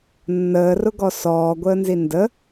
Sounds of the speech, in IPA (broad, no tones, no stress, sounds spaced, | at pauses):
nː əː r ʊ ɡ ɔ s ɔː ɡʷ əː n z i n d ə